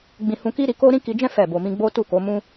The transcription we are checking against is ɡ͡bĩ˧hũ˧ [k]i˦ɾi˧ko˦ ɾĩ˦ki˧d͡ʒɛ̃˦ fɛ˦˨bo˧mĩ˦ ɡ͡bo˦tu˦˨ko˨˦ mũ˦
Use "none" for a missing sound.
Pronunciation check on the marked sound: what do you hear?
k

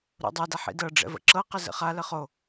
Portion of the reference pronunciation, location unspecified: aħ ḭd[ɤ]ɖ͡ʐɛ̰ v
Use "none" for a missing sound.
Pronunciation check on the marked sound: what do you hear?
ɤ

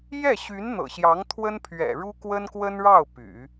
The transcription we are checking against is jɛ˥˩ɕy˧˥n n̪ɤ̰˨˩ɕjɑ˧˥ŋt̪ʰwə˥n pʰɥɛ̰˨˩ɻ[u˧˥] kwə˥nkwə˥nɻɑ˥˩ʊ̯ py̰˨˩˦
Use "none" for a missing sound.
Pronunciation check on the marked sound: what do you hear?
u˥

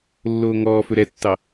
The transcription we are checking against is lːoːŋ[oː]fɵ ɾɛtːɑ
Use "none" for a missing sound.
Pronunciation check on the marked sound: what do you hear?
ɔː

